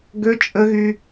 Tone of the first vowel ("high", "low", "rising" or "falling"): high